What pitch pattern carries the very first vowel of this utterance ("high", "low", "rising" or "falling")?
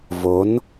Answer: rising